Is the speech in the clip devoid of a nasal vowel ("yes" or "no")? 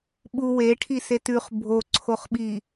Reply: yes